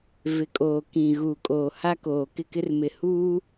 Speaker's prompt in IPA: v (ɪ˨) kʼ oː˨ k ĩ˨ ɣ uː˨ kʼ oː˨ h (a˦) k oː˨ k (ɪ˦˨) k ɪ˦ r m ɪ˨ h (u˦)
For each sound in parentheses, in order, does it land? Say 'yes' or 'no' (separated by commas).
yes, yes, yes, no